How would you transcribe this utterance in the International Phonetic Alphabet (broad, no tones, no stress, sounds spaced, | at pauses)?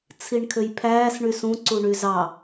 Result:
t͡sʰ i ɳ kʰ ø j pʰ æː s ɳ y s ũ ǀ u ɳ y z ɑ